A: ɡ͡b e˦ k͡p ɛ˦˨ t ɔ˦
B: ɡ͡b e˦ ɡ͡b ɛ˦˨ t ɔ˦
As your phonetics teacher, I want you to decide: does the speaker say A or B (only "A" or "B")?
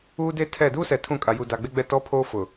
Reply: B